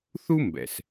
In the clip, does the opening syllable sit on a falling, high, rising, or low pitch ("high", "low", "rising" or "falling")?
high